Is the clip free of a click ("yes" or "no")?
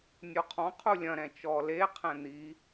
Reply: yes